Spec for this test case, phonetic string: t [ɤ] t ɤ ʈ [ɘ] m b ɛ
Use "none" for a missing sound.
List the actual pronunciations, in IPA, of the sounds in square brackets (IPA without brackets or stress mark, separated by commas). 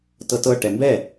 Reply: ɤ, ɛ